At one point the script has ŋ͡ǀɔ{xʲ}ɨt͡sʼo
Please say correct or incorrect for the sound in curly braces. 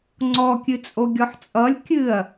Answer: incorrect